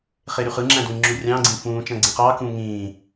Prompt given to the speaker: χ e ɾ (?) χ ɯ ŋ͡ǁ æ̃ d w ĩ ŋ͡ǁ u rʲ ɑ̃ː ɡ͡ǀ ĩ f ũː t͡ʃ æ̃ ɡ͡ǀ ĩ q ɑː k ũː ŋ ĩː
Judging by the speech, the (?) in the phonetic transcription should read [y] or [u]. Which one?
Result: y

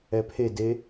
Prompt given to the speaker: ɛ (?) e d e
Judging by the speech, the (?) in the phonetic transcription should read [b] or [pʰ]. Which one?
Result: pʰ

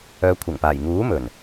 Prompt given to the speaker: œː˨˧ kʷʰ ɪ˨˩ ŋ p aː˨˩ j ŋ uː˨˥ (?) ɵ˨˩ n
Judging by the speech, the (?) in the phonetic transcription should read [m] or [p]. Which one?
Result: m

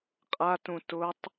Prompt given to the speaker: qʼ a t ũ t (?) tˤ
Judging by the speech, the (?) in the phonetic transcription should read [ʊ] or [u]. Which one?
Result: ʊ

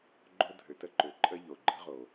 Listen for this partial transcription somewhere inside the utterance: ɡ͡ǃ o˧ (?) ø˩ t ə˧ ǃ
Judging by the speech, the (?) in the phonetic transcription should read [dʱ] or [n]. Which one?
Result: dʱ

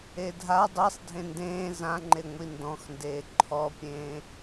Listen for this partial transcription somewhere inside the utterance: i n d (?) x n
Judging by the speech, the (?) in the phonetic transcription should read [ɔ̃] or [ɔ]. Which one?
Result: ɔ̃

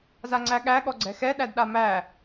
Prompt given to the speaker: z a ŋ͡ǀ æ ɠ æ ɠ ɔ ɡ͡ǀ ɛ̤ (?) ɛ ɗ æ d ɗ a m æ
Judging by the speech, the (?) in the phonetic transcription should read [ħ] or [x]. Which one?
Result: x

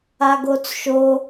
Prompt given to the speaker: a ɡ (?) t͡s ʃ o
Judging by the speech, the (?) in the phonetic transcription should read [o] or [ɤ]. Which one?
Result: o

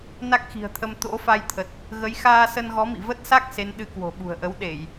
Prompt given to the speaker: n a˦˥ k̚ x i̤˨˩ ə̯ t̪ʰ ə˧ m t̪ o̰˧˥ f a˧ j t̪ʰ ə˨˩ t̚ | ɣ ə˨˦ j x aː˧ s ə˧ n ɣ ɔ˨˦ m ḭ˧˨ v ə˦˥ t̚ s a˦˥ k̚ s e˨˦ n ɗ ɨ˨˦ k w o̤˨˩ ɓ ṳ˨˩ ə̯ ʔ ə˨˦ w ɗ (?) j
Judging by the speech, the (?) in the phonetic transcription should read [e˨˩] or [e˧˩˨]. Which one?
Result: e˧˩˨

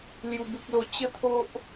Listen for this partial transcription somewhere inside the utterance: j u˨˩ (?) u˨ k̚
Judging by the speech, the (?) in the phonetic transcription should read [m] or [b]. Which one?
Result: b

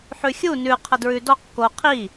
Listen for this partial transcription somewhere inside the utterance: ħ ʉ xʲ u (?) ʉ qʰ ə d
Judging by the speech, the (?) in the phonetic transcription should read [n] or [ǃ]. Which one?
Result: n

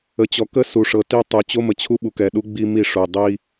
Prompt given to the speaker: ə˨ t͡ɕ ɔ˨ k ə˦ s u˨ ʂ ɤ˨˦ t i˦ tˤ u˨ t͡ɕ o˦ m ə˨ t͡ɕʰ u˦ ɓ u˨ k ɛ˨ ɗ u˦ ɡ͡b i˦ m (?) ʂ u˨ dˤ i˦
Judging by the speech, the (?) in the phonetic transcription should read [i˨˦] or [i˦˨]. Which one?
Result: i˦˨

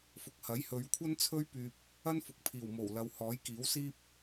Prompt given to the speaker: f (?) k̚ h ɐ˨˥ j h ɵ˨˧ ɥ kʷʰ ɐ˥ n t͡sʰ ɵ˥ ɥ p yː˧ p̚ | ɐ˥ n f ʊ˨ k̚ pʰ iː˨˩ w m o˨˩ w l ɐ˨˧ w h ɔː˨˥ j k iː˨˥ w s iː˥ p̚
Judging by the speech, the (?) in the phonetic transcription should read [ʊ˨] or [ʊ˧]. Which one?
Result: ʊ˨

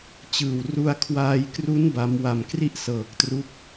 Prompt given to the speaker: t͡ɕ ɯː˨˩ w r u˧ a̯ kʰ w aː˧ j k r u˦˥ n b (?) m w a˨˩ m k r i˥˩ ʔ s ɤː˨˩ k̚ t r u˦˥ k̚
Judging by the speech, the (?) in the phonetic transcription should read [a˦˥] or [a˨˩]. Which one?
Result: a˦˥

